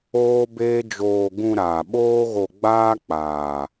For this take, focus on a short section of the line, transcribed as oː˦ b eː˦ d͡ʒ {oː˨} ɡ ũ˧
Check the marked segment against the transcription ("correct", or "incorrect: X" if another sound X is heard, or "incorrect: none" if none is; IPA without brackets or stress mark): incorrect: oː˧